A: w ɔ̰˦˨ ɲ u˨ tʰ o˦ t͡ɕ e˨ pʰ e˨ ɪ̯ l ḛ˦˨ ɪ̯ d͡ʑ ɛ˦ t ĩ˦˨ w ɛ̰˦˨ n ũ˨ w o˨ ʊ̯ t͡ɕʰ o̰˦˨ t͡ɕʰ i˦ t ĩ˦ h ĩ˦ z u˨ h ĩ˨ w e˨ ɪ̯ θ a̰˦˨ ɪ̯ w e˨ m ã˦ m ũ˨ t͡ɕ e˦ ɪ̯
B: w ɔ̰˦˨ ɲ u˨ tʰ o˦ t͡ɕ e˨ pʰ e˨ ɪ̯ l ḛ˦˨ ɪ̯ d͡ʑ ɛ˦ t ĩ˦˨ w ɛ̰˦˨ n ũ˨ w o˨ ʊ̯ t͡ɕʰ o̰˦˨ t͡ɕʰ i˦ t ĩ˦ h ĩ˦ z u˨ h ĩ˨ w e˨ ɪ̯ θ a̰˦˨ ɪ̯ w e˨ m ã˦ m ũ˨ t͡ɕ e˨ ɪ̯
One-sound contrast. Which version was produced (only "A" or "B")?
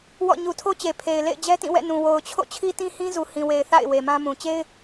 A